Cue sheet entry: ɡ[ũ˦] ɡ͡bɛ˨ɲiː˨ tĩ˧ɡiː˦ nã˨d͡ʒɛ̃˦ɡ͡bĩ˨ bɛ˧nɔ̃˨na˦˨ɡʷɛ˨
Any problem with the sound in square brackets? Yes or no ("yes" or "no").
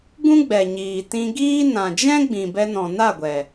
no